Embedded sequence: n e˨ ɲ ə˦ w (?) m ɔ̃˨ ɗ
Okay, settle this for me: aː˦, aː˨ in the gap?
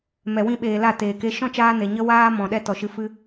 aː˦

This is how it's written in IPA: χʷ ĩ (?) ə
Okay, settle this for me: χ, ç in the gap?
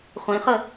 χ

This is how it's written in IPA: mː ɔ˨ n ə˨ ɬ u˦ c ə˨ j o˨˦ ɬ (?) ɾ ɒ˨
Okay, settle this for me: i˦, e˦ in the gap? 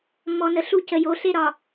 e˦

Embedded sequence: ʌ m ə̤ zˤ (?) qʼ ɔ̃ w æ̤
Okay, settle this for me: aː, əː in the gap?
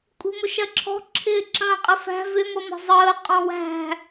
əː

